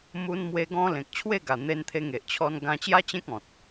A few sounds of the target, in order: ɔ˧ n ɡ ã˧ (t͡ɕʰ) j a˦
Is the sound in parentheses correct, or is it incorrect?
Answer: incorrect